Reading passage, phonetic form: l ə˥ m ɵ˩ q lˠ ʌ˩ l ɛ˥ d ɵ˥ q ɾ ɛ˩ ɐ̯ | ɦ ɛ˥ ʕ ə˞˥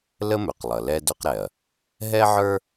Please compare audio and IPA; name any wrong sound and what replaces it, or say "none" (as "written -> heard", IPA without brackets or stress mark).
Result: none